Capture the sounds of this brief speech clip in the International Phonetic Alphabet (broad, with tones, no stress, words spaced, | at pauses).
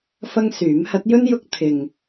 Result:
fɐ˥ŋsyː˨˥m hɐ˨˥t̚jɵ˥njʊ˧k̚ t̪ʰɪ˨ŋ